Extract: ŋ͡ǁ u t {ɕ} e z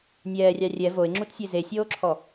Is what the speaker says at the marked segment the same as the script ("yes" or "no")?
no